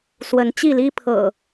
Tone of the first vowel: rising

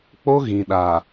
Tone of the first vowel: high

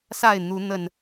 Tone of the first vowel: falling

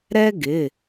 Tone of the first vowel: high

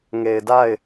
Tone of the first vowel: low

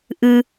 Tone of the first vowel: low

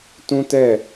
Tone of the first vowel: high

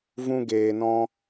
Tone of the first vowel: high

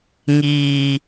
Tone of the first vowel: low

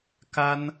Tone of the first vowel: high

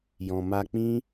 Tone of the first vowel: low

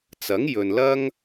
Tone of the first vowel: rising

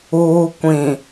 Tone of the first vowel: low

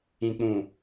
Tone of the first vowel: low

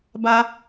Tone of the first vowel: high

